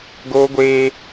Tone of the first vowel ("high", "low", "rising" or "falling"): high